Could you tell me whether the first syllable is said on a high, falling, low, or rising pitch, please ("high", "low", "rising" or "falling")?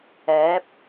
rising